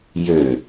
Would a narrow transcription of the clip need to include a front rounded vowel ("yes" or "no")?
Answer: yes